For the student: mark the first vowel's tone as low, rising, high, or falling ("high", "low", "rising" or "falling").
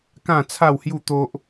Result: falling